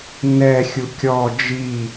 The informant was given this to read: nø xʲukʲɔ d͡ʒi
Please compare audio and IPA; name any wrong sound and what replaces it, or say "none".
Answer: ø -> ɛ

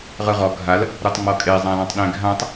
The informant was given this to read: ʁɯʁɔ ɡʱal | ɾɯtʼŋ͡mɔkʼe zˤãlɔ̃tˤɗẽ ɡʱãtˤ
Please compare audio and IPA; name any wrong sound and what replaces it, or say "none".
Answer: tʼ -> tˤ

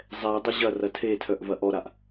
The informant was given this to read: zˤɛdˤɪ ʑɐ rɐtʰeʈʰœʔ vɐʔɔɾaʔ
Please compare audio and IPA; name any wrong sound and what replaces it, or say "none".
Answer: ʈʰ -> tʰ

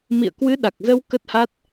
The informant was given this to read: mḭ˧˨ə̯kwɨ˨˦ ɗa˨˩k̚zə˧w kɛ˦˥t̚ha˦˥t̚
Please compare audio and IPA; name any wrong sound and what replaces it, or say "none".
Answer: ɛ˦˥ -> ə˦˥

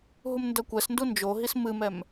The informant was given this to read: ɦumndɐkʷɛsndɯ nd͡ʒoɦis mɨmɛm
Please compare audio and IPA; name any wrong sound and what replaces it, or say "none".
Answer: ɯ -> u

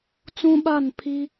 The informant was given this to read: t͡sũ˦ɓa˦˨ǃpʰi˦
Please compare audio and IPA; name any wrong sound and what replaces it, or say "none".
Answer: ǃ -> n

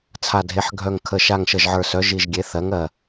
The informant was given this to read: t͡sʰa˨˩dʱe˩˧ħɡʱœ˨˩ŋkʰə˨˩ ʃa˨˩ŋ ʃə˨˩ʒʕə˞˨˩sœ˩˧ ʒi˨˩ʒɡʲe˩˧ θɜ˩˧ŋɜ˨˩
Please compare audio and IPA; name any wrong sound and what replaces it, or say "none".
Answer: none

